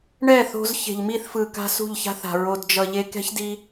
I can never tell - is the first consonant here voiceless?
no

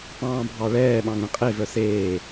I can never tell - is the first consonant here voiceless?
yes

